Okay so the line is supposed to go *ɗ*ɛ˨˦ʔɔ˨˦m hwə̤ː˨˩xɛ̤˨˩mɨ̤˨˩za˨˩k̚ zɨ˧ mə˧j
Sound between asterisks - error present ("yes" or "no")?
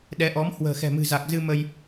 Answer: no